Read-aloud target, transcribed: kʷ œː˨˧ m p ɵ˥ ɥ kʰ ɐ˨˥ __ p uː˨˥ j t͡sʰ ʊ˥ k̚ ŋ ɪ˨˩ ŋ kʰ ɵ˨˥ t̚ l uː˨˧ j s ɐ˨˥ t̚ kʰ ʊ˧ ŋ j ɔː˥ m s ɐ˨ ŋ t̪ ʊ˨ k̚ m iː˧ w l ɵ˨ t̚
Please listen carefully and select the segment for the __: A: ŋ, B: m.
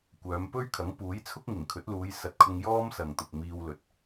A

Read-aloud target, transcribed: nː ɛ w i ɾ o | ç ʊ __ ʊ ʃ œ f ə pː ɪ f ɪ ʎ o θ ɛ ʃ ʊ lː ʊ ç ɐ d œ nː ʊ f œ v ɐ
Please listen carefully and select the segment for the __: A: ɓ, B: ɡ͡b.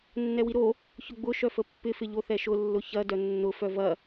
B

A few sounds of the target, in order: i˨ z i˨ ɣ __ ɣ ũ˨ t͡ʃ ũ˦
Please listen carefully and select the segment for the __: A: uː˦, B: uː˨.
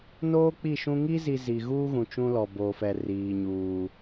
A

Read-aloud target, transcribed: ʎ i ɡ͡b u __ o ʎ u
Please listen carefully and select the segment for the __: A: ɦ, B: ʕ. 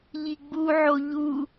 B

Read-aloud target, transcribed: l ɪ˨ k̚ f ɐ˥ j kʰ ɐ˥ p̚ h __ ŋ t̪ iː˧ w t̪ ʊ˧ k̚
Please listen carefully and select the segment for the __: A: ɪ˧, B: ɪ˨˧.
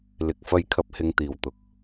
A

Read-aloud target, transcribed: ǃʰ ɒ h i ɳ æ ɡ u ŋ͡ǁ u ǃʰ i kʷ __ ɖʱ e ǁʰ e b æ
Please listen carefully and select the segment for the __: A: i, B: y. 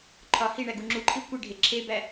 A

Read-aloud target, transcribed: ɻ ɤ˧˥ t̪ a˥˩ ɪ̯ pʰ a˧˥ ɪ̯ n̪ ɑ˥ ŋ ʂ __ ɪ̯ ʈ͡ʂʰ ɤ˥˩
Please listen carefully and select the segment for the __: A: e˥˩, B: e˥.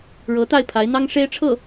B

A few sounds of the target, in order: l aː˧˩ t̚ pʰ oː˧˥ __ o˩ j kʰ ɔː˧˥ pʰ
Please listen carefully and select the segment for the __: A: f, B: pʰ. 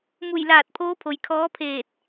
B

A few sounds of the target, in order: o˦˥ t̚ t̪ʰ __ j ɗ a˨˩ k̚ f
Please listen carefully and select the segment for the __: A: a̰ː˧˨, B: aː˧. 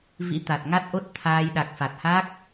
B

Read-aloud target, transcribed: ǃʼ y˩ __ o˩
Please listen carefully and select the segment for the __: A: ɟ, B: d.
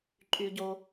A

